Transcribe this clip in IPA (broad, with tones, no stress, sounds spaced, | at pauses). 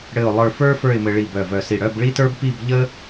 ɽ ɘ˥˧ ʊ̯ lˠ ə˞˥˧ f ə˞˥ f ə˞˥˧ ɪ̯ m ɘ˧ ɭ i˧˩ b œ˧˩ v œ˧˩ s i˧˩ ɽ œ˥˧ b ɭ i˥ t ə˞˥ b p i˥˧ b ʎ ə˥